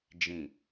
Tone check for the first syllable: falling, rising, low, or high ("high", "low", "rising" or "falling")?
low